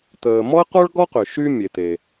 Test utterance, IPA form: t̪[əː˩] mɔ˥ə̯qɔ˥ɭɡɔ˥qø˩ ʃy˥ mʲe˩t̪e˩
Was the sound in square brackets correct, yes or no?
yes